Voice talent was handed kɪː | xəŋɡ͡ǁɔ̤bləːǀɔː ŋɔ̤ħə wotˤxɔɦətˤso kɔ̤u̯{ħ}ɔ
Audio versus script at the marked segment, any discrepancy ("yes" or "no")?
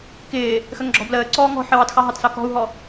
yes